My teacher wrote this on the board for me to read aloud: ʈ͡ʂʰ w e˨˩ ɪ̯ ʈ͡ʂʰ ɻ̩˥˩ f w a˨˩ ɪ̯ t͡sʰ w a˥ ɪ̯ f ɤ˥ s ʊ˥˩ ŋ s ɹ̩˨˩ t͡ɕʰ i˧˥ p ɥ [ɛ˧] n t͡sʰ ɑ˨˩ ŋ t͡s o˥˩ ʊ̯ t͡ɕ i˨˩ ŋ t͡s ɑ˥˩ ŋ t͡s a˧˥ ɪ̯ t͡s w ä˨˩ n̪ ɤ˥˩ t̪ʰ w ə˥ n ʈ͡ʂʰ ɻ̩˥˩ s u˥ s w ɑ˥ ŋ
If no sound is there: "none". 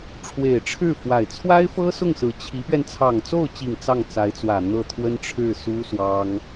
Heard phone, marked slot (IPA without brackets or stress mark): ɛ˧